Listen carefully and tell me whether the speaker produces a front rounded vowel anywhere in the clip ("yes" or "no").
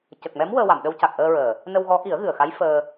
no